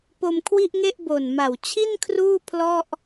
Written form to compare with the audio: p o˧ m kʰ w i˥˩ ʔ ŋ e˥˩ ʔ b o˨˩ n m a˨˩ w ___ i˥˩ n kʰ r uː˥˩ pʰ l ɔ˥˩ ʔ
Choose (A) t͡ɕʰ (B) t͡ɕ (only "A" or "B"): A